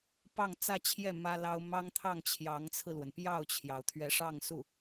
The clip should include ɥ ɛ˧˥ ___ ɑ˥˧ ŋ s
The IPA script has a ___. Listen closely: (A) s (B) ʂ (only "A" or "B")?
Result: B